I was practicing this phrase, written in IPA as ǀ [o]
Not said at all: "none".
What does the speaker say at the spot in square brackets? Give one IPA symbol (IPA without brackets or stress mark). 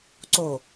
o